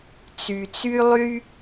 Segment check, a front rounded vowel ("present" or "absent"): present